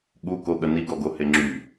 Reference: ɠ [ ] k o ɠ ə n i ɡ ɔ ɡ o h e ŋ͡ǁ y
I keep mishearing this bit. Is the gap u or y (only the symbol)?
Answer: u